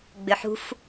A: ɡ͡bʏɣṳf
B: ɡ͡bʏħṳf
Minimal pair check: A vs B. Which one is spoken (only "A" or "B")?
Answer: B